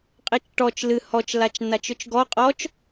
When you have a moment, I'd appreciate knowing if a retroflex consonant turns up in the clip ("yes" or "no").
yes